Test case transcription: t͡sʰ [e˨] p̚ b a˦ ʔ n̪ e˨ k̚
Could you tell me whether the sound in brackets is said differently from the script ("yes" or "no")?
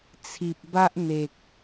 yes